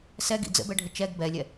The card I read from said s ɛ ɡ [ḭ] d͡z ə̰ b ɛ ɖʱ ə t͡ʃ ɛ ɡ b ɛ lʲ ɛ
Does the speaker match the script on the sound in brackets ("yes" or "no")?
yes